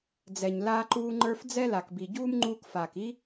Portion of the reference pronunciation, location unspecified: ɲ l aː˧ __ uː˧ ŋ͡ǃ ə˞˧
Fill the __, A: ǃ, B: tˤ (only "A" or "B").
A